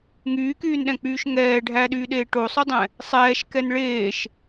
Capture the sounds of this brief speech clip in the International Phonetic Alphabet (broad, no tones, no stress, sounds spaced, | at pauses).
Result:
ŋ yː k yː n ɗ ɛ̃ k͡p yː ʃ ŋ ɛː ɖʱ æ ɗ yː ɗ eː ʈ o sˤ y dˤ ɛ̃ | sˤ ɛː ʃ k ɛ n ɭ eː ʃ